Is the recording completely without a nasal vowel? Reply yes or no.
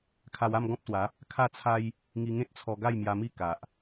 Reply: no